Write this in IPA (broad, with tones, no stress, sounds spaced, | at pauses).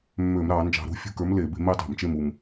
mː øː˧˩˧ m ɾ ɑː˧˩˧ n d͡ʒ ɑ̤˧˩˧ ɾ ṳ˨˥ fʲ ṳ˦˨ k ə˞˨˥ m l e˧˩˧ b e̤˨˥ m e˨˥ tˤ a̤˧˩˧ m t͡ʃ e˦˨ m u˨˩ m